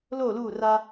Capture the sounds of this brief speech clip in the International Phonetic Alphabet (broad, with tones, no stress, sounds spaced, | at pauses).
l oː˦˨ l uː˦˨ r a˦